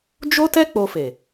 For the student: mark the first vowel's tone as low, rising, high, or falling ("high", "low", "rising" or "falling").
high